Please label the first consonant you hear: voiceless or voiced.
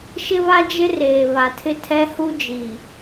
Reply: voiceless